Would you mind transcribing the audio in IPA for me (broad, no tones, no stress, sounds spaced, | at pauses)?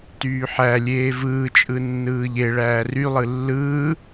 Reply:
t yː ħ æ lʲ eː v ɯː t͡ʃʼ ɯ nː ɯː ʎ e ɭ æː r y lˠ ɯ lː ɯː